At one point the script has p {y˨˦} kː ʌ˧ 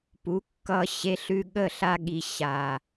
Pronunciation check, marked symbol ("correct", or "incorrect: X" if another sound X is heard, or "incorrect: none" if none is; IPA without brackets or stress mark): incorrect: u˨˦